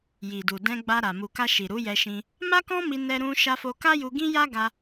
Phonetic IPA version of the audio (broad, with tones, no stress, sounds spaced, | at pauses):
j i˨ d u˨ d ɛ̃˧ ɡ͡b a˧ ɾ a˨ m u˨ k a˧ ʃ i˨ ɾ u˨˦ j ɛ˧ ʃ ĩ˧ | m a˦ k ɔ̃˦ m i˧ n ɛ˧ ɾ ũ˧ ʃ a˧ f o˧ k a˦ j u˧ ɡ ĩ˦ j a˦ ɡ a˧